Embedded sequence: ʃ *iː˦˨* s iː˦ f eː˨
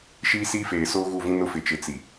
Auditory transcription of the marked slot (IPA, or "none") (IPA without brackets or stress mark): iː˦